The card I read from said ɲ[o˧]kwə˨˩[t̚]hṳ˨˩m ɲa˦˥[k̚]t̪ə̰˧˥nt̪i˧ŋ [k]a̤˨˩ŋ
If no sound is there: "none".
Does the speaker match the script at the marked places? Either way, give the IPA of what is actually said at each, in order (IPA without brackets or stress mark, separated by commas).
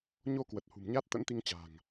o˧, t̚, t̚, t͡ɕ